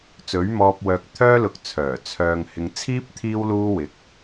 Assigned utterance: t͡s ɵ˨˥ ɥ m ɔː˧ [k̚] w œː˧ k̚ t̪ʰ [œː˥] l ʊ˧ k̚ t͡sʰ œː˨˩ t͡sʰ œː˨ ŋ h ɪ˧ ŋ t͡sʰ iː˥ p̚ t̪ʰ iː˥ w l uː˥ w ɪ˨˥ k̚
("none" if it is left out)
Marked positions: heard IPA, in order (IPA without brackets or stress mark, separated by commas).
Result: p̚, œː˥